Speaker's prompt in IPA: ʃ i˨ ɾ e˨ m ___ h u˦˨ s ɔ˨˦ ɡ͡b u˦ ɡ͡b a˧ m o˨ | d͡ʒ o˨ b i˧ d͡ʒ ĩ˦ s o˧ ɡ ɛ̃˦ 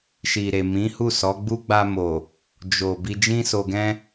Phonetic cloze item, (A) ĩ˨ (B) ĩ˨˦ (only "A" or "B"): B